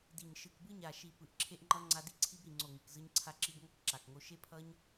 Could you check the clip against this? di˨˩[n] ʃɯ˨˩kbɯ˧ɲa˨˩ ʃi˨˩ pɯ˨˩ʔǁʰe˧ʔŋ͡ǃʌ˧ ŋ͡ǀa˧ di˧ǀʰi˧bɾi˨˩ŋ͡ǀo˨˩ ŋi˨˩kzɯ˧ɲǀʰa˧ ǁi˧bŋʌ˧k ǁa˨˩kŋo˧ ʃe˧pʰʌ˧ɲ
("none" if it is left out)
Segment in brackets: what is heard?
ɲ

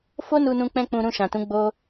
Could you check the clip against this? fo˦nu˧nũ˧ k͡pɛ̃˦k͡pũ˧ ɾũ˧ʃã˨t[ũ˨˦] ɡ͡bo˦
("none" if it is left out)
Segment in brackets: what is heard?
ũ˨˦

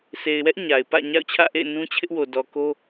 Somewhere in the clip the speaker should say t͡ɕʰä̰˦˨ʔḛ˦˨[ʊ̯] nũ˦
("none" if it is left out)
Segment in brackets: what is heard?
ɪ̯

